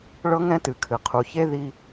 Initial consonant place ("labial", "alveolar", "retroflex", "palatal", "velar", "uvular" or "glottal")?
retroflex